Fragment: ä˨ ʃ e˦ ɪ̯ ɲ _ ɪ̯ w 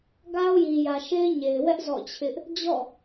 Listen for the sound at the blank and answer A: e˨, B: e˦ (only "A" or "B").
A